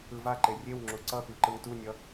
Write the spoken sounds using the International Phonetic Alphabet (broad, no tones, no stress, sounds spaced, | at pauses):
ɯ v a ǃ e rʲ e w ŋ͡ǁ u ǀ ʌ p i ǃ ɯ ŋ t u nʲ ʌ